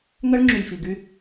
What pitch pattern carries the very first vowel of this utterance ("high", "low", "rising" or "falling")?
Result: high